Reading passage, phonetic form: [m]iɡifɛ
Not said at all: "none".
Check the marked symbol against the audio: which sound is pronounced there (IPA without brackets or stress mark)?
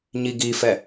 ɲ